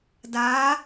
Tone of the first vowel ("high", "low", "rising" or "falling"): rising